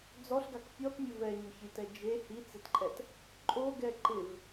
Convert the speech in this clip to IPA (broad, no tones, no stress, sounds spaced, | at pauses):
d͡z ɔ ɬ ɡ a k pʲ ɔ t mʲ ʊ v ɛ ɲ ʊ ç i t ɛ d͡ʒ e h i t͡s e t ǃʼ ɛ t | ǃʼ o ɡ ɛ ǃ ɪ v